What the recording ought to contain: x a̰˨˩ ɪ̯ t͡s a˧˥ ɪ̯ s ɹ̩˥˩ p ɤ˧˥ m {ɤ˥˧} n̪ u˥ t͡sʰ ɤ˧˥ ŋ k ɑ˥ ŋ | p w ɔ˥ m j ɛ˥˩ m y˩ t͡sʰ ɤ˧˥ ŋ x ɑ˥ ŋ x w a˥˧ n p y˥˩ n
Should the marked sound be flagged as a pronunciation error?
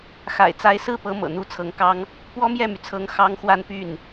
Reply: yes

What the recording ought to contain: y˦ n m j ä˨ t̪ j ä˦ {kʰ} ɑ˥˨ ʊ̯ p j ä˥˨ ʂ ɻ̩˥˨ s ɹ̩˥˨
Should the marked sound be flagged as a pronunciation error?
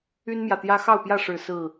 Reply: yes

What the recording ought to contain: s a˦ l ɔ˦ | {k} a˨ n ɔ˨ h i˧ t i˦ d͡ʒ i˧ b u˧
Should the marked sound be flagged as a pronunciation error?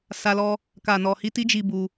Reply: no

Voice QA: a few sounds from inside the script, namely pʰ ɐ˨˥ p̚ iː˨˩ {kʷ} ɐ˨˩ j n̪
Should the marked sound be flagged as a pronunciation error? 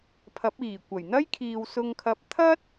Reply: no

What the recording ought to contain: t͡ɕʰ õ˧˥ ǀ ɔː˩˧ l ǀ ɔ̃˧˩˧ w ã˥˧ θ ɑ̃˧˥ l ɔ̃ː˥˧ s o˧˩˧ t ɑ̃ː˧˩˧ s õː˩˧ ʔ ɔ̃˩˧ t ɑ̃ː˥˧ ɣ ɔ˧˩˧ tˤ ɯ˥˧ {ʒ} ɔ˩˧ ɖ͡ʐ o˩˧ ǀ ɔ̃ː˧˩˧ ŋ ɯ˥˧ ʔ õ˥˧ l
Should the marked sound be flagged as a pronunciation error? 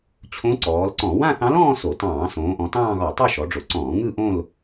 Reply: yes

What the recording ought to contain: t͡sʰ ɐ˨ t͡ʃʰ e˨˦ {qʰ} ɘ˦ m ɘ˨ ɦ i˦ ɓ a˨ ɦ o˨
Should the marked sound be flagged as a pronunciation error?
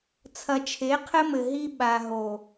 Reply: no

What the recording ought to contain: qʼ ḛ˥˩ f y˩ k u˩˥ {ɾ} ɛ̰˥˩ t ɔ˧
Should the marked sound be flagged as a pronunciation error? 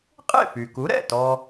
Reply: no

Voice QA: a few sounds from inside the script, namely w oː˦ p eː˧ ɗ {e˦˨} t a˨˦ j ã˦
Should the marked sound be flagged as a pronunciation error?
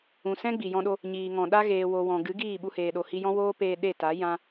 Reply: no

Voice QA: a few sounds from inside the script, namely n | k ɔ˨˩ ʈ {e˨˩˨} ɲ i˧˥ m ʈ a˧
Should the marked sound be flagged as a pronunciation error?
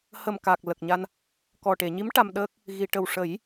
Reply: no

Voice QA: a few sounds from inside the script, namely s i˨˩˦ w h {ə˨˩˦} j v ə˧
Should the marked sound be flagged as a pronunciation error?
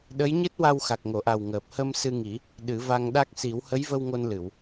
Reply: yes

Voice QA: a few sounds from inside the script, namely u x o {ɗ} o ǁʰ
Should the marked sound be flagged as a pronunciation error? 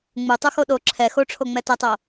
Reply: no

